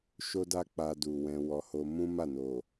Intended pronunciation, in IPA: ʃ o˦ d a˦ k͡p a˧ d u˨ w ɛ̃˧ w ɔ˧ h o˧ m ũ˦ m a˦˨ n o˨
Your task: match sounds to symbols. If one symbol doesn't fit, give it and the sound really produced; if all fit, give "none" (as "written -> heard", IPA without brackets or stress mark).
none